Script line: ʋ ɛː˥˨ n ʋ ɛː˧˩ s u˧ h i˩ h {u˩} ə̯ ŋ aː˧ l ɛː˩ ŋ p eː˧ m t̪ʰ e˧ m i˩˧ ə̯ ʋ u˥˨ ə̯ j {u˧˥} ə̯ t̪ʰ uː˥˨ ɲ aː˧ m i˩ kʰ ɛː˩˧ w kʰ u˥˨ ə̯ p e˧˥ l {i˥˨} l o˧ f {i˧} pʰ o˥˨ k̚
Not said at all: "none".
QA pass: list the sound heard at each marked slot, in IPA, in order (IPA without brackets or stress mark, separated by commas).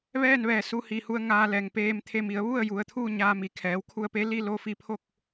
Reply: u˧, u˩˧, i˥˨, i˧